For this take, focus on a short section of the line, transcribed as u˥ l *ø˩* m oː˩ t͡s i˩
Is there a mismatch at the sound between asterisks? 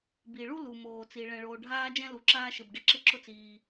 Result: yes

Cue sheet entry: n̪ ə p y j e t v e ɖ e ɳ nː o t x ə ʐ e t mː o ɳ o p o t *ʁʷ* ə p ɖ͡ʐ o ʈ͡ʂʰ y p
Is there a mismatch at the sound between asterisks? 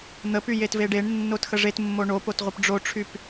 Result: no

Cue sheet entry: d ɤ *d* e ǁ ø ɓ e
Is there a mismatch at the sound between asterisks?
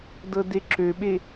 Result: no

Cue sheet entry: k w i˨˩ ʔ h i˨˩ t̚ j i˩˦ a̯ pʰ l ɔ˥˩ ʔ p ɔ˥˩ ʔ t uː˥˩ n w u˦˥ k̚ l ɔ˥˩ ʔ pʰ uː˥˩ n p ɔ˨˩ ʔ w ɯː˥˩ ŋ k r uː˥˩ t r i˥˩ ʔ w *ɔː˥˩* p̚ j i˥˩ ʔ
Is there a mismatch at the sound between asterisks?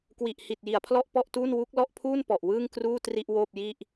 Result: yes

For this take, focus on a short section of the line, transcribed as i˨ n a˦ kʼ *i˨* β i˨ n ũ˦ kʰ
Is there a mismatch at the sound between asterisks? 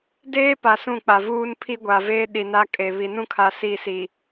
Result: yes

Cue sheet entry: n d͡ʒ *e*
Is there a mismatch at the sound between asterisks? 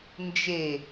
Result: no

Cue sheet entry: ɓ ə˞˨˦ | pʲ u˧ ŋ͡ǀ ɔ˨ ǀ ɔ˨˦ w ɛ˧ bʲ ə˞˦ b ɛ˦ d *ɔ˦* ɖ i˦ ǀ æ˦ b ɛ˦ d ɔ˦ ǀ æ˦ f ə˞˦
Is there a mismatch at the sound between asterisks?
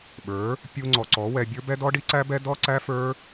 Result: no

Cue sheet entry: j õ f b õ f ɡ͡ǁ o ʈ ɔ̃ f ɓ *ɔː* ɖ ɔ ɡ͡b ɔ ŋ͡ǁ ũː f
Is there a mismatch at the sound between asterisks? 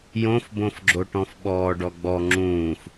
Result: no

